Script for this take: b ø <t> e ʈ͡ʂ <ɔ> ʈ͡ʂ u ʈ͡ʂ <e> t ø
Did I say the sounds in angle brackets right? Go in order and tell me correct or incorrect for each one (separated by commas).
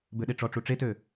incorrect, correct, correct